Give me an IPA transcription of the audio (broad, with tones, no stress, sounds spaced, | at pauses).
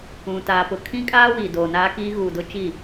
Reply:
ũ˨ t aː˨ p ʊ˨ kʰ ĩ˦ kʼ aː˦ w iː˨ d oː˨ n aː˦ k iː˦ ɣ uː˨ d ʊ˦ t͡ʃ i˦˨